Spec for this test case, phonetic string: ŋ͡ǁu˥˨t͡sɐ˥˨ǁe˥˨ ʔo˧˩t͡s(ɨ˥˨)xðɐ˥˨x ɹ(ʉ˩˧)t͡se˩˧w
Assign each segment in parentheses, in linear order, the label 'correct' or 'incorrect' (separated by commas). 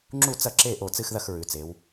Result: correct, correct